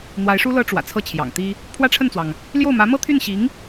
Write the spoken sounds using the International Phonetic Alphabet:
n̪ w a˧˥ ɪ̯ ʂ u˥ l ɤ˥ ʈ͡ʂ w ä̰˨˩ t͡sʰ ɤ˥˩ t͡ɕʰ j ɑ̰˨˩ ŋ t̪ i˥ | pʰ w ä˥ ʈ͡ʂʰ ə˥˩ n t͡s w ɑ˩ ŋ | l j o˥˩ ʊ̯ m ä˧˥ m ɤ˥ t̪ʰ y˥˩ n ɕ i˧˥ ŋ

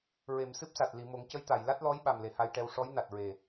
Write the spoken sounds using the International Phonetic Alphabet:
ɹ e˨˩˨ m s ɨ˦˥ p̚ s a˨˩ t̚ l i˨˩˨ m o˨˩˦ ŋ c ə˧˥ j t̪ a˨˩˨ j l a˦˥ t̚ l ɔ˧˥ j ɓ a˨˩ m l e˨˩ h a˧ j ʈ ɛ˧ w ʂ ɔ˧˥ j n a˨˩ t̚ ɹ e˨˩

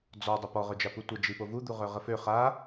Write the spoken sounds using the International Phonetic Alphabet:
d͡z ɔ dˤ ə p ɔ ʁ œ d͡ʒ a p u tʷ ə d͡ʒ i p o v u d̪ u ʁ œ ʁ ə f ø χ a

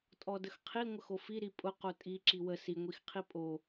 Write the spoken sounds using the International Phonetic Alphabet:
tʼ ɔ d ə x qʰ i ŋʷ ə x o f i ɾ i pʼ ʊ q o tʼ i ǁ i w ə s i ŋʷ i x qʰ i pʼ o

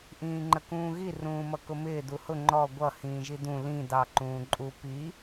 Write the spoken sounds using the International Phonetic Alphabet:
ʔ ĩː ŋ͡ǃ ə k ũː ɣ i r ũː m ʌ k ʊ m ɪː d u h ʊ ŋ͡ǃ ɔ ɡʷ ʌ h ĩː ʒ i d ũ l ĩ d ɑ ǃ ũː ǃʼ u p i

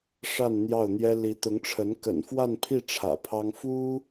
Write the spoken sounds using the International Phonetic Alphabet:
ʂ a˥˧ n n̪ j ɑ˥˩ ʊ̯ n̪ j ɛ˥ l i˧˥ t̪ ʊ˧˥ ŋ ʈ͡ʂʰ ə˧˥ n k ə̰˨˩ n f w a˥˧ n pʰ i˥˩ ʈ͡ʂʰ ä̰˨˩ pʰ ɑ˥ ŋ f u˥

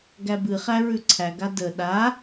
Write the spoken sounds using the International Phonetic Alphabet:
ɡ æ b ɨ χ æ ɹ ʉ ǀʰ æ ɡ a d ə ɗ a

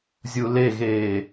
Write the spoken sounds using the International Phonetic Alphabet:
zʲ u l e ɣ eː

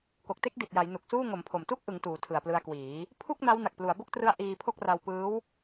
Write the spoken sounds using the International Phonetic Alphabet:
k o˨˩ k̚ t e˥˩ k̚ d i˨˩ t̚ j a˩˦ j n u˨˩ k̚ s uː˥˩ ŋ o˩˦ m pʰ o˨˩ m t u˥˩ k̚ ʔ ɯ˩˦ ŋ t uː˩˦ tʰ ɯ˨˩ a̯ p l ɯ˧ a̯ k w iː˩˦ | pʰ u˥˩ k̚ n a˦˥ w n a˨˩ k̚ p l u˩˦ a̯ b o˥˩ k̚ t r ɯ˦˥ a̯ ʔ iː˧ pʰ o˥˩ k̚ r a˧ w p ɯː˦˥ w

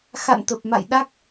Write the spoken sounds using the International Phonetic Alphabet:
x a̰˧˨ n t̪ ə˨˩ p̚ m a̰˧˨ j ɗ a˦˥ k̚

